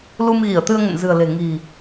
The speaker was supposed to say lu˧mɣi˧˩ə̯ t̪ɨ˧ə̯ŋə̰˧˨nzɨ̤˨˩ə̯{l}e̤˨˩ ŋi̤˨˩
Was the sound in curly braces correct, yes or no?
yes